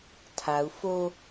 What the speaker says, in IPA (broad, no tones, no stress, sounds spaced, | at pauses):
tʰ a u̯ f o